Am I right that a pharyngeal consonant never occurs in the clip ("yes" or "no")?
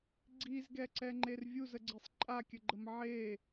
no